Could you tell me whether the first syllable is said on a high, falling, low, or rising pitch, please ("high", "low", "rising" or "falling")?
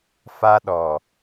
high